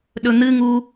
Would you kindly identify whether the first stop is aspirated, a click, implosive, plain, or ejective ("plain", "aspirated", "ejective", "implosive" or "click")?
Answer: implosive